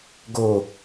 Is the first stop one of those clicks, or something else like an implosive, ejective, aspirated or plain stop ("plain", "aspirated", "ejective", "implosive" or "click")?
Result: plain